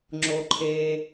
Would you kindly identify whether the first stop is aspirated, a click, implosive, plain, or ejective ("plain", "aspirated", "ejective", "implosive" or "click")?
click